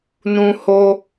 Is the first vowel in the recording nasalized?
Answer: yes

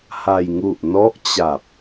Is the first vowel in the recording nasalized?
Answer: no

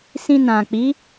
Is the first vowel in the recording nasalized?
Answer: yes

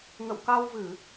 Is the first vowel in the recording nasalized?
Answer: no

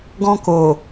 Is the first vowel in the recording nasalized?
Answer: yes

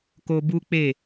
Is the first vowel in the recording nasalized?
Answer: no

